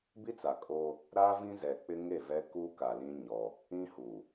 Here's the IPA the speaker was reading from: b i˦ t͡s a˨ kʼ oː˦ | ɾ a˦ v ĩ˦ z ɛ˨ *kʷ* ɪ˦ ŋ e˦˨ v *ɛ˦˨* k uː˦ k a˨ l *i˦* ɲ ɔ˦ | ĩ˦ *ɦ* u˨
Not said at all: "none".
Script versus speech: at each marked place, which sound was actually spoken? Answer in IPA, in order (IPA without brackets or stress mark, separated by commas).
k͡p, ɛ˦, ĩ˦, h